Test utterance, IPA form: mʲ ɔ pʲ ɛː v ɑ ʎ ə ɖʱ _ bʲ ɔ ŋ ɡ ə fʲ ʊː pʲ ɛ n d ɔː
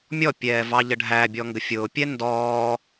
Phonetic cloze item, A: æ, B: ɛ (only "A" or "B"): A